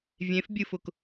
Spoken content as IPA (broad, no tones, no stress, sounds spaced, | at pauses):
vʲ ẽ f bʲ ɨ f ʊ k